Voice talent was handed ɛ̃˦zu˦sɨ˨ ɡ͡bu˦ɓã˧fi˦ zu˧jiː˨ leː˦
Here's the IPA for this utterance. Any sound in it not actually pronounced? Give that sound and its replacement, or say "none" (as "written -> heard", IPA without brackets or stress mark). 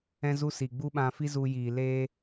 ɨ˨ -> i˨